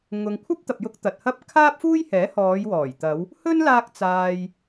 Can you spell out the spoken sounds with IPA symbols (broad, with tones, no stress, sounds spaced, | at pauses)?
ŋ ʊ˨ ŋ kʷʰ ɐ˥ p̚ t̪ ɐ˨ p̚ j ʊ˧ k̚ t̪ ɐ˨ t̚ h ɐ˥ p̚ kʰ aː˥ p̚ f uː˥ j h ɛː˨˥ h ɔː˨˧ j w ɔː˨˩ j t̪ ɐ˨˧ w | h ɵ˥ n l aː˧ k̚ t͡s aː˨ j